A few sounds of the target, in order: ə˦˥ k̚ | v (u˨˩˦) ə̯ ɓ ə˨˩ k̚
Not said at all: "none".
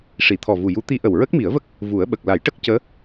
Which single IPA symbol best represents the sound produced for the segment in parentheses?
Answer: u˨˩˦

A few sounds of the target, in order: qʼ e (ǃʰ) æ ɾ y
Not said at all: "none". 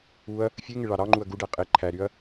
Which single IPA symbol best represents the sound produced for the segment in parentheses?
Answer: ǃʰ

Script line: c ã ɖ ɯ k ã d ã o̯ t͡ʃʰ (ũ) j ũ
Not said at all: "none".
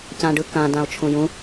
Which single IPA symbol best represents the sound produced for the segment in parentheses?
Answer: ũ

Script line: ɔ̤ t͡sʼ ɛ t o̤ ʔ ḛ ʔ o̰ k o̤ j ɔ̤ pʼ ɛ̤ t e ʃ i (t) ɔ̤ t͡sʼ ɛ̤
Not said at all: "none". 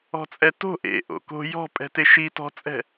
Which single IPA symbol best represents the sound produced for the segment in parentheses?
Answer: t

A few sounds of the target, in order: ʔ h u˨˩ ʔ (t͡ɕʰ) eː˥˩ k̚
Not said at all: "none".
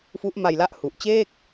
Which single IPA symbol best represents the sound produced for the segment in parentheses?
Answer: t͡ɕ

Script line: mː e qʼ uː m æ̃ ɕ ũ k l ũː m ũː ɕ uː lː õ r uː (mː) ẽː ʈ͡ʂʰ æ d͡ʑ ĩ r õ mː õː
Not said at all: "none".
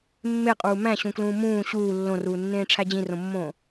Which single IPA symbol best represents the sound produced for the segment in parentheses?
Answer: nː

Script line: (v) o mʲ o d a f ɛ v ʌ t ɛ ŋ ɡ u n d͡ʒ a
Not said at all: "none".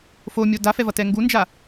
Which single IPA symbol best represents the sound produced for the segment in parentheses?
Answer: f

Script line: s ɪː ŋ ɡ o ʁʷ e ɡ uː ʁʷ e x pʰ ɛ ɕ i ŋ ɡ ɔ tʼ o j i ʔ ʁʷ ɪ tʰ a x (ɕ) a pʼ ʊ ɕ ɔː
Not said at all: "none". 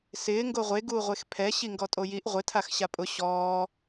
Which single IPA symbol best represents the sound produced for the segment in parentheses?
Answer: ɕ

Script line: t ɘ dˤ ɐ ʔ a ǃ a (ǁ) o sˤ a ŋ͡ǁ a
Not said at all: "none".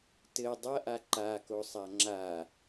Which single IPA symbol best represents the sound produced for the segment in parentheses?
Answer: k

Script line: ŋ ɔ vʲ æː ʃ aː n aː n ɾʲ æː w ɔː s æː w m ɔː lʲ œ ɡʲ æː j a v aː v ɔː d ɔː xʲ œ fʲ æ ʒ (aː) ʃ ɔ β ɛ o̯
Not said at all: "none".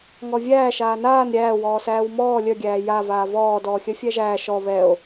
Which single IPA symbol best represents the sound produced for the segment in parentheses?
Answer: æː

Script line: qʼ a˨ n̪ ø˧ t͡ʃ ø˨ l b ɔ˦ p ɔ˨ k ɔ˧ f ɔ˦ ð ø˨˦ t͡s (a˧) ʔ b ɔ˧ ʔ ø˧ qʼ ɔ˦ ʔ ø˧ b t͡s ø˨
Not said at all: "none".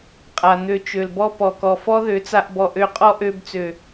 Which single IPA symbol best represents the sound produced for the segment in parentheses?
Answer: a˧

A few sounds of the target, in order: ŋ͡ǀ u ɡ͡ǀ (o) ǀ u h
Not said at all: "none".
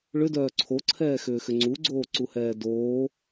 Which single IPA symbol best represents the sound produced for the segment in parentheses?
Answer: oː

